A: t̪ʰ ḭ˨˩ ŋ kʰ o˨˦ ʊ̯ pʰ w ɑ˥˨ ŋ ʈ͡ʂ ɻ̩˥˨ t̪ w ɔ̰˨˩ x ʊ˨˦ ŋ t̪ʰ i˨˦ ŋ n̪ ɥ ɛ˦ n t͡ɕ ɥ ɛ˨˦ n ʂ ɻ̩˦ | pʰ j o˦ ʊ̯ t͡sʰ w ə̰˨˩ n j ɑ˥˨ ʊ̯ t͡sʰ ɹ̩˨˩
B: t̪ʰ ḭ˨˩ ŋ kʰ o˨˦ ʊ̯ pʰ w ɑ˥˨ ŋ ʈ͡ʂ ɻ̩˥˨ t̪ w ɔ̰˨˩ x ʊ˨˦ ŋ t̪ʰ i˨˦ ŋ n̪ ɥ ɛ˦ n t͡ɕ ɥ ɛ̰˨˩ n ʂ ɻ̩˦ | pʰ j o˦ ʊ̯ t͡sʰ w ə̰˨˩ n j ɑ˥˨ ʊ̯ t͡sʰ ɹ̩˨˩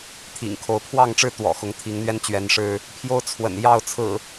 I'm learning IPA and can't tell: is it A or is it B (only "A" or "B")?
A